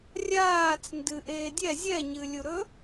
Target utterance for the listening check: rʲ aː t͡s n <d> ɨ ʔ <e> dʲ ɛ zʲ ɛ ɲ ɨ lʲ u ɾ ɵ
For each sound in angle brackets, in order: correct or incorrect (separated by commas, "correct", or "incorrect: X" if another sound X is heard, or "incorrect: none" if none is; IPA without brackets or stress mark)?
correct, incorrect: eː